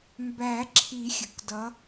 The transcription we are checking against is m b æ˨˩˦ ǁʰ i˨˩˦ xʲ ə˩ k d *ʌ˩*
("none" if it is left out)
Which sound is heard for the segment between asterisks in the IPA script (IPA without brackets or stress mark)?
ʌ˨˦